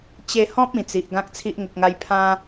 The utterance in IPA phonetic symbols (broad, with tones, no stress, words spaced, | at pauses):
t͡ɕe˧hɔ̃˦p̚ ĩ˨˩t͡si˨ʔ ɡã˦k̚t͡sʰi˦ʔŋə˨k̚ŋa˧j pʰã˦